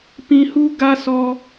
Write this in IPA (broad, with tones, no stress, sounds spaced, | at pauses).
p ĩ˧ h u˦ ɡ a˦ s ɔ˧